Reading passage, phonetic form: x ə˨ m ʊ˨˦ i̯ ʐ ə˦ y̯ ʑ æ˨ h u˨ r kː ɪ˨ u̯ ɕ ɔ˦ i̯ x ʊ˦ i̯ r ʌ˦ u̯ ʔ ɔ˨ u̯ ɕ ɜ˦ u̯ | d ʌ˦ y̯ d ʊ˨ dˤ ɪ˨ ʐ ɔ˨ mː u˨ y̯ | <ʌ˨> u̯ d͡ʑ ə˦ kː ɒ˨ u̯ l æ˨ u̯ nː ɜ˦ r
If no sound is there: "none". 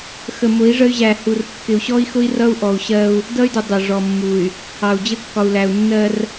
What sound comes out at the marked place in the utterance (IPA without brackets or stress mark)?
ɑ˨